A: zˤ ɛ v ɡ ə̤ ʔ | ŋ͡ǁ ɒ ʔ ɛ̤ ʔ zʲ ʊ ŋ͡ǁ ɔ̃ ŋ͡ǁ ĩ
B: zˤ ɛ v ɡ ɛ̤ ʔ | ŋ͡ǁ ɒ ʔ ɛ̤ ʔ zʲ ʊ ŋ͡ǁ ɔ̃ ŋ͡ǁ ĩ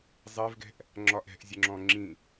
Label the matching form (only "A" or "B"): B